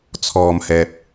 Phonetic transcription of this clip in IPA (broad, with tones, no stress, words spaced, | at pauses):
t͡sʰɔː˨mhɛː˨p̚